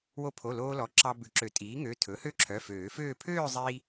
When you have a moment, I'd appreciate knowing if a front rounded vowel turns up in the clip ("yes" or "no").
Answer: yes